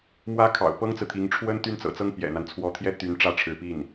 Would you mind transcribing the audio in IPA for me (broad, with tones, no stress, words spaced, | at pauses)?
mwä˥kʰɑ̰˨˩ʊ̯ pɤ˥ŋt͡sɹ̩˨t̪ʰi˧˥ŋ ʈ͡ʂʰwə˥n t̪y˥nt͡sɤ̰˨˩t͡sɤ˥ŋ pjɛ̰˨˩n̪a˦n t͡sʰwɔ˧˥t̪ʰjɛ˥ t̪y˧˥n ʈ͡ʂä˥˩ʈ͡ʂʰɻ̩˧˥ pi˥˩n